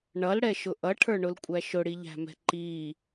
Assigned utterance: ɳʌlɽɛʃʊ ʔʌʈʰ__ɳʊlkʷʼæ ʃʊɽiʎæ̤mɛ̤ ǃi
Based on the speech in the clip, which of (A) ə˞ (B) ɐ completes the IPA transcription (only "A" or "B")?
A